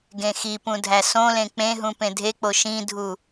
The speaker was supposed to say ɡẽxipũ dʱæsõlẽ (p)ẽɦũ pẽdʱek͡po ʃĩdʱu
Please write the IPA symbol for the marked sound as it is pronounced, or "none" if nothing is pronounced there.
k͡p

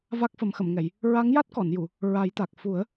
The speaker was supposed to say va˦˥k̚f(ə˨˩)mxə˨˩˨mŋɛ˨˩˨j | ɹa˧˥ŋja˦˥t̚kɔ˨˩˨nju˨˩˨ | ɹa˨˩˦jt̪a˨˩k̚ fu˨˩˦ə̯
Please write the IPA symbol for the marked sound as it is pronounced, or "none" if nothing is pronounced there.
ə˨˩˦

